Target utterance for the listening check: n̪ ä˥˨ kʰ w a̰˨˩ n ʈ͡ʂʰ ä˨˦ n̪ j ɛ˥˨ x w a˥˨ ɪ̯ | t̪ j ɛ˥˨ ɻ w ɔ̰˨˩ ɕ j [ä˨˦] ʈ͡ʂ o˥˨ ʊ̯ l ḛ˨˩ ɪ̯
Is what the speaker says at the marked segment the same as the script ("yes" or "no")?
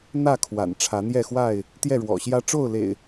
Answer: no